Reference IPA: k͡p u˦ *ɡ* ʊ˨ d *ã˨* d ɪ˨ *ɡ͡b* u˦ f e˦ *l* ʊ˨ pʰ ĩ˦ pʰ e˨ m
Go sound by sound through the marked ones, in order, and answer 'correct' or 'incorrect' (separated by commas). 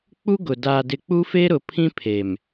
correct, incorrect, incorrect, incorrect